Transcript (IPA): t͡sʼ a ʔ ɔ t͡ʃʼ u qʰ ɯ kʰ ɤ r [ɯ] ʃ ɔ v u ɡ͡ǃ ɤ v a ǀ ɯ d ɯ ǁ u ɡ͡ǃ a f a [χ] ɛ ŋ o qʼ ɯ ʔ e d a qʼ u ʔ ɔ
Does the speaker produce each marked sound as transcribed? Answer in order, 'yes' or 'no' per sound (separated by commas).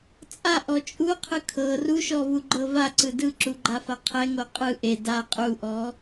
no, no